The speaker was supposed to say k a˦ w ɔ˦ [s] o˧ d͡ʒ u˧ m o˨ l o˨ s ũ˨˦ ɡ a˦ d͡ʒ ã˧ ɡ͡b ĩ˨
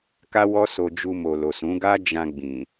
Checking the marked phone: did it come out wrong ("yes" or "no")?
no